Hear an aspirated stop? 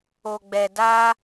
no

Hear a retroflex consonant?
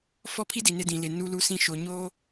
no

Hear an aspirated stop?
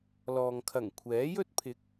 yes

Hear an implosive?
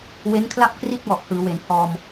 no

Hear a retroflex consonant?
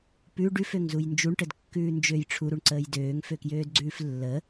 yes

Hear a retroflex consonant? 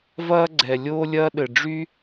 yes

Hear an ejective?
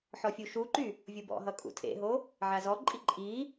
yes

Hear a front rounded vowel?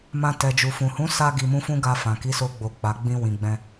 no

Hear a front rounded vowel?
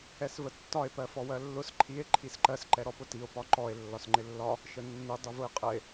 no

